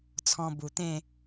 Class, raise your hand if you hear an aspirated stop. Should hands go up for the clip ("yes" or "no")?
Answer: yes